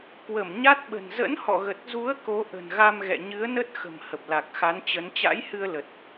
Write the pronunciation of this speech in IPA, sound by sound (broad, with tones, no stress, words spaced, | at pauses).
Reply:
kwə˧˩m ɲa˦˥t̚ɓə̤˨˩n zə̰˧˥nhɔ̰˧˨ɣə˨˩t̚zu˨˦ə̯ ko˨˦ʔə̤˨˩nɣa˧mɣɛ̰˧˨ ɲɨ˨˦ə̯nə˦˥t̚xə̤˨˩m hə˨˩p̚la˨˩k̚xa˨˦nt͡ɕə˨˦n t͡ɕa̰˧˥j hɨ˧ə̯lə˨˩t̚